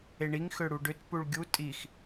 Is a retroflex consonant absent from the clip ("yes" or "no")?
no